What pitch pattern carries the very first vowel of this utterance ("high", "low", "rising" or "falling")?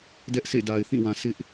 high